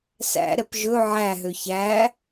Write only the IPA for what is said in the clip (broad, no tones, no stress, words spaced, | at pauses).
sæ̰ ɾɛpʒɵ ʕæɦø çæ